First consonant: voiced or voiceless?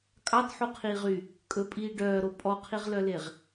voiceless